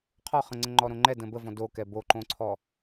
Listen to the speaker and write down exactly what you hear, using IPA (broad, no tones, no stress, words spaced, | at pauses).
qʰɔχə̃ŋ͡ǀə̃ ŋ͡ǃɔɾõŋ͡ǃɛ də̃bəvɔ̃ dokɛ boǃõǀʰɔ